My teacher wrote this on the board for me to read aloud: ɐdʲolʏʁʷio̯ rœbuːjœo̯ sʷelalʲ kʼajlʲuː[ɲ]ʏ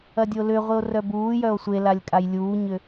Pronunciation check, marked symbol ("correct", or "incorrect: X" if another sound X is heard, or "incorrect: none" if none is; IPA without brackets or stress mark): correct